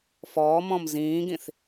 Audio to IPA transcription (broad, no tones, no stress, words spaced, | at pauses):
fɔːmɔ̃m zĩːɡĩθ